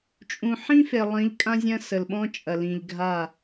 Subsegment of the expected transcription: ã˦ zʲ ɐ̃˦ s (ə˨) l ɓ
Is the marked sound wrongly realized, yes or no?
no